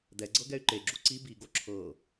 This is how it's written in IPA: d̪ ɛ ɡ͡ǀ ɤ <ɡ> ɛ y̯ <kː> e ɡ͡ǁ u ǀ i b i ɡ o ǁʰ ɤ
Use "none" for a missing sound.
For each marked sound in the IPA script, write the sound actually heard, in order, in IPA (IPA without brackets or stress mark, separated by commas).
ɡ, ǃ